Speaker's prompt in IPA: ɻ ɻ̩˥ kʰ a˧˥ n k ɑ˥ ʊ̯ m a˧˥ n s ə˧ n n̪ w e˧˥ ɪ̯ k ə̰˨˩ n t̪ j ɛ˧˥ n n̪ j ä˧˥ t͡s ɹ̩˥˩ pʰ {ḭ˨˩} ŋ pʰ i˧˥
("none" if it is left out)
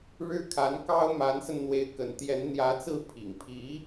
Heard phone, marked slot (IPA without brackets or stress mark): ḭ˨˩